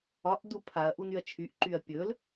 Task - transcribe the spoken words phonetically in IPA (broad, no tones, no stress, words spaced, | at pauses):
ɒʔdu pʰaɐ̯ ʔunyɐ̯t͡ʃʰyʔǃyɐ̯ pʲɵl